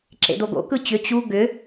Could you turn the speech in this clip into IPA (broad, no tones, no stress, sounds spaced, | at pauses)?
ǁ ḛ d̪ o ɡ o̰ k ɯ t͡ɕ ʏ t͡ɕ u ɡ ʏ